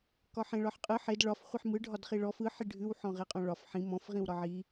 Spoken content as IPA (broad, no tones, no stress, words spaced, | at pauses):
kɒħẽɭɒħqʼɯ ħed ɭɒf χʷiħmɯ ɖʱɒdχiɭɔf ɯ ħiɖʱʉw ħɔ̃ʁeqʼɔ̃ɭɒf ħĩ mɔ̃f ʁĩwɾɒʕi